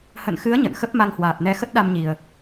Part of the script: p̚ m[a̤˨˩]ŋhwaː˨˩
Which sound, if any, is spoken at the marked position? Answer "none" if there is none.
a˧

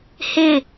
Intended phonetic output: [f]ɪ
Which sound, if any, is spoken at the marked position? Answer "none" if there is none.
h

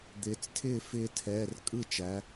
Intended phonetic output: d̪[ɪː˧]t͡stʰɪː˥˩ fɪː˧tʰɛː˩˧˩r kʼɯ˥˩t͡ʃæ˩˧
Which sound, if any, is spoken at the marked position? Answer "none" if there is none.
ɪː˩˧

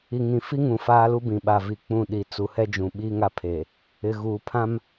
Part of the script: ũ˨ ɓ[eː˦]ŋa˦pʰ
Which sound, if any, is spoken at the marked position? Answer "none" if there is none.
iː˦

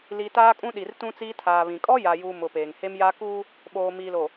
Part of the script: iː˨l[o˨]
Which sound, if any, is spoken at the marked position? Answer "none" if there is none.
o˨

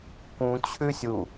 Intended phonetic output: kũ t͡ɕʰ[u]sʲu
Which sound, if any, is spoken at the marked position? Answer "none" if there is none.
ʉ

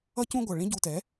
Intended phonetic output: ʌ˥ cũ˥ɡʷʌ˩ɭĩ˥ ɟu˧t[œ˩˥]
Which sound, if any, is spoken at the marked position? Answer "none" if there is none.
ɛ˩˥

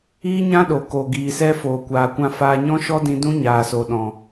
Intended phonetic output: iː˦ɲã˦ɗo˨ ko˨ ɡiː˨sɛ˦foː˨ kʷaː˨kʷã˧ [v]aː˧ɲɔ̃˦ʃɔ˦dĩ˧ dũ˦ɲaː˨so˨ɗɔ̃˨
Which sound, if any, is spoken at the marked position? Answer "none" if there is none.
f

